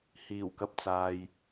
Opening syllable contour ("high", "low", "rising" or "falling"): low